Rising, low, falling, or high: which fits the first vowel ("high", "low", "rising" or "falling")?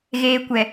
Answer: low